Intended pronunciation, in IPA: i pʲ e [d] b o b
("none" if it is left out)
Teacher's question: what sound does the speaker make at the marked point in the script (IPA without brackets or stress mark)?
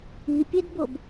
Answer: d